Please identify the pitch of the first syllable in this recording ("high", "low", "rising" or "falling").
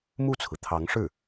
falling